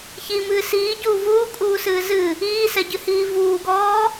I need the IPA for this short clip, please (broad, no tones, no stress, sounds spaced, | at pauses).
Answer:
ç i m ɨː s iː ɟ uː v uː kʼ uː s ɨː z ɨ | iː s ɛ ɟ ɨ h iː v uː ɡ ɔː